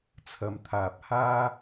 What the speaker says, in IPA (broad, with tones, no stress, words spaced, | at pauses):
t͡sʰɐ˨mt̪ʰaː˨p̚ haː˥